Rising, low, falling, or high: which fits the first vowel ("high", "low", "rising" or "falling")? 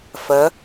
rising